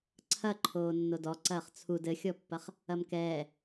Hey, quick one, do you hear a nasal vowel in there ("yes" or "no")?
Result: no